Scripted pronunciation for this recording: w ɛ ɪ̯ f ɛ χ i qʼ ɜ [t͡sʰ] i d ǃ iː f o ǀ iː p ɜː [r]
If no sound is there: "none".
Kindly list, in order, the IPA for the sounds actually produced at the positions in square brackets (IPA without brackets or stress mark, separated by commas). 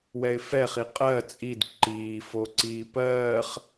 t͡sʼ, χ